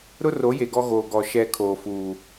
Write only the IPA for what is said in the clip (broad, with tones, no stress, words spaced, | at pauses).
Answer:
ɾʊ˦ro˨˦ je˨ɡɔ˦ɣoː˨ ɡɔ˨ ʃɛ˦˨kʰoː˨fuː˨